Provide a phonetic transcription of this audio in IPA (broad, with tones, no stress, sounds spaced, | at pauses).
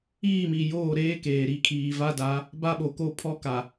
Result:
iː˦˨ m i˨ j oː˦˨ ɾ eː˦ k eː˨ ɾ i˨ kʰ iː˨ v a˦ d a˨˦ | b a˦ ɓ o˨ k o˦ pʰ ɔ˦ k a˨